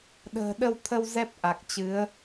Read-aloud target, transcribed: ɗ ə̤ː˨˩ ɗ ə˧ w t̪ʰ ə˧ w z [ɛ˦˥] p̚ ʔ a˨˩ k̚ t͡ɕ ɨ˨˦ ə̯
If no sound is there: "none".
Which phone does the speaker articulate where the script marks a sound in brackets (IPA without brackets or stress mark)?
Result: ɛ˦˥